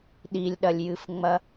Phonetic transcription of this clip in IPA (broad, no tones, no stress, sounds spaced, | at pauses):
ɗ i lʲ ɗ ɐ lʲ j ɨ f ŋ͡m ɐ